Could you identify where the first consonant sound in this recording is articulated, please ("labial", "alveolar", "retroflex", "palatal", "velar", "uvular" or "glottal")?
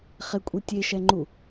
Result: uvular